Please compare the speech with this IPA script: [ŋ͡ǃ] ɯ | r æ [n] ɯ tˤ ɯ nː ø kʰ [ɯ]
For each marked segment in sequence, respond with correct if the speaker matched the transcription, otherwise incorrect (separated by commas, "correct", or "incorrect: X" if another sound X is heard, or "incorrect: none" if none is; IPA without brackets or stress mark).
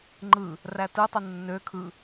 correct, incorrect: t, correct